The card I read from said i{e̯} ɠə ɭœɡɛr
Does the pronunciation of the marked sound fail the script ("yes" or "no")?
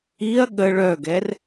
yes